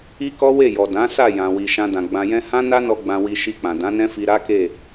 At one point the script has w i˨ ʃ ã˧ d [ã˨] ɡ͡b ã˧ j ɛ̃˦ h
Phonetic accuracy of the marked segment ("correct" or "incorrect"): correct